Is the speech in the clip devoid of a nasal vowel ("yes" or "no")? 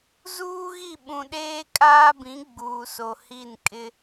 no